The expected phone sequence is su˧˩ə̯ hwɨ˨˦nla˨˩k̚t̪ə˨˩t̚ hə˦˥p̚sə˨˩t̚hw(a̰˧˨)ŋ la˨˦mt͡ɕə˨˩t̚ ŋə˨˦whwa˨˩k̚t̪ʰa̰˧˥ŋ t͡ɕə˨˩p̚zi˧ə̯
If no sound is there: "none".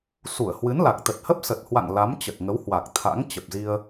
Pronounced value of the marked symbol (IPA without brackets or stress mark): a̰˧˨